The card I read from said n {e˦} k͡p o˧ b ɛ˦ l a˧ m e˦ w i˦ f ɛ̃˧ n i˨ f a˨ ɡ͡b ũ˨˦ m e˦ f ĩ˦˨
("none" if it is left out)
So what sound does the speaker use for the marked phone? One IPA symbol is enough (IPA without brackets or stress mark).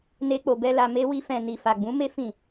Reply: e˦